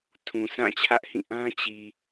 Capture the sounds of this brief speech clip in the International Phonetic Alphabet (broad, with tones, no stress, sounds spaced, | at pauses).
tʰ ũ˨ sʰ ã˦˨ t͡ɕʰ ä˦ ʔ h ĩ˦˨ ʔ ã˦ t͡ɕ i˨